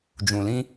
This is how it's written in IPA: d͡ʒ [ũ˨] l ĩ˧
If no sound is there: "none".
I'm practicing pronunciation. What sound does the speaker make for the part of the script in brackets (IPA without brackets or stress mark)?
ũ˨